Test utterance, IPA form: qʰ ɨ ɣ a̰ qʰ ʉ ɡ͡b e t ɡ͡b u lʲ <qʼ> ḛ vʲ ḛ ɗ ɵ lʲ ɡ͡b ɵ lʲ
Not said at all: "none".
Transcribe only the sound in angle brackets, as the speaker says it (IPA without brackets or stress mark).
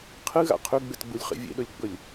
χ